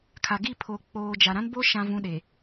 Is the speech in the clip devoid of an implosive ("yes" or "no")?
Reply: no